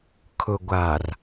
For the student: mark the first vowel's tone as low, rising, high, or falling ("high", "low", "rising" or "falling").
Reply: low